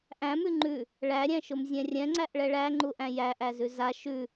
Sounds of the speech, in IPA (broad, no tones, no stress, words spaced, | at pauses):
ʔæ̃mʉ ŋ͡ǃʉ | ɭæɾʲæ̃ʃʊmzʲɛ̃ rʲɛ̃ŋ͡ǀæʔɭɛ ɭæŋ͡ǃuʔæ̃ jæʔæzʉ za ʃʉ